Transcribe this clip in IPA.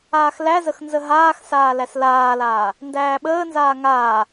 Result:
aː x l æ z ə x n z ə ɦ aː x s aː l æ s l aː l aː | n d æː ɓ əː n z aː ŋ aː

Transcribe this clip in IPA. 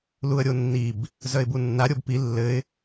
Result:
l u ə̯ ɾʲ o nː i b | z œ ɪ̯ b u nː a ɾʲ o b p i lː ɘ ɪ̯

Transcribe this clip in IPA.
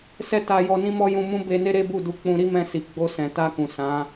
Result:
s ɛ˦ t a˧ j ɔ˧ n ĩ˦ m ɔ˦ j ũ˧ m ũ˦ b e˧ n e˦ ɾ e˦ b u˦˨ d u˧ k͡p ũ˧ ɾ i˦ m ɛ̃˧ s i˨ ɡ͡b o˧ s ɛ̃˨ t a˧ k ũ˨ s ã˨˦

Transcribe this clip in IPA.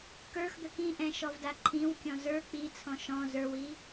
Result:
k ə˞ x d̪ ə k ĩ ʔ ɛ̃ ʃ ɔ v d a ǃʰ ĩ w kʲ ɔ̃ z ə˞ k͡p i t͡sʰ ɔ̃ ʃ ɔ̃ z ə˞ w i

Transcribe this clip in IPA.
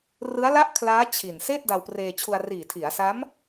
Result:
r ɯ˦˥ a̯ l a˥˩ ʔ kʰ l aː˦˥ t͡ɕʰ i˨˩ n s eː˥˩ t̚ d a˧ w p r eː˧ t͡ɕʰ u˧ a̯ r iː˨˩ tʰ i˩˦ a̯ s a˦˥ m

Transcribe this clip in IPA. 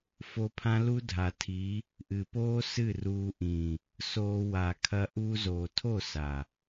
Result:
f o˧ pʰ ã˦ l u˦ dʱ a˨ tʰ i˨˦ | ʔ ɨ˨ p oː˦ s ɨ˦˨ r uː˧ ʔ ĩː˨ | s oː˧ w a˨ kʰ ɐ˧ ʔ uː˧ z oː˨ tʰ o˦˨ s a˨

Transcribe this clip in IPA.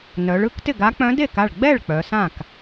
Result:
n œ˩˧ ɭ ɯ˧˥ k t ɪ˥˩ ɡ a˧˥ k͡p œ̃˧˥ d e˥˩ k a˥˩ ɭ ɡ͡b ɛ˥˩ ɭ k͡p œ˩˧ s ã˥˩ k

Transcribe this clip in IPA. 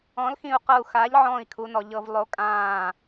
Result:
ɔ̃˨˥ l x ĩ˧˩ u̯ q ɤ˧˩ u̯ x a˨˥ ʎ ʕ ɔ̃ː˧˩ i̯ kʰ u˩˧ n ɔ˩˧ ʎ ɤ˩˧ v lˠ o˨˥ kʼ ãː˧˩

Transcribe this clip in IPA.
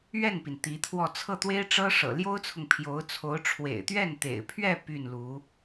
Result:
ɥ ɛ˥˩ n p i˩ n t̪ i˧˥ t̪ʰ w ɔ˥˧ t͡sʰ ɤ˥˩ t̪ w e˥ ɪ̯ ʈ͡ʂ ɤ˥ ʂ ɤ̰˨˩ l j o˥ ʊ̯ t͡sʰ ʊ˨ ŋ pʰ j o˧˥ ʊ̯ t͡sʰ o˧˥ ʊ̯ ʈ͡ʂʰ w ḛ˨˩ ɪ̯ t̪ ɥ ɛ˥˩ n t̪ ḛ˨˩ ɪ̯ pʰ ɥ ɛ˥˧ p y˥˩ n l u˧˥

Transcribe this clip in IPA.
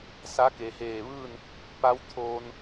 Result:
s a˧˥ k e˩ h eː˧˩ ʋ ɯː˥˨ n | p a˧˥ w t̪ʰ oː˧ n

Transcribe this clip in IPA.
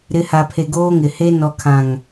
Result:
ɾ ɪ˨˦ h a˨ pʰ e˨ ɡ oː˦ ŋ ɪ˨ h e˦ n ɔ˨ kʰ ã˨ ŋ

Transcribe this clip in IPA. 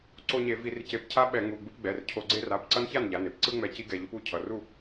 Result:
ǀ o˦ ɲ e˧˩˧ v i˧˩˧ r c e˧˩˧ p cʰ a˦ ɓ ɛ˧˩˧ ŋ u˩˧˩ ɡ͡b ɯ˦ p ɡ͡b ɛ˩˧˩ r cʰ o˧˩˧ ɡ͡ǀ e˦ r a˩˧˩ p ǀ ʌ˦ n ç a˥˩ n ʎ a˩˧˩ n e˩˧˩ p ǀ ɯ˦ ŋ͡m ɛ˧˩˧ c i˦ ɡ ɛ˩˧˩ ʎ o˦ p u˩˧˩ cʰ ʌ˩˧˩ r u˥˩

